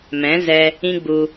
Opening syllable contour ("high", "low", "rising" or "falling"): rising